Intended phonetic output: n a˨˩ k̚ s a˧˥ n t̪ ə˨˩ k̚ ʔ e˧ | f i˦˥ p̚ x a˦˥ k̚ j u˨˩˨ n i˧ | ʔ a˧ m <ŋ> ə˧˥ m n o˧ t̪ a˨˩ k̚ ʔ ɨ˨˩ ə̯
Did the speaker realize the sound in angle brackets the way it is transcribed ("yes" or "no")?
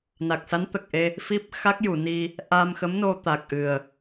no